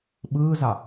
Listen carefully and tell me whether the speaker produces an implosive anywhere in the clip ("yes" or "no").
yes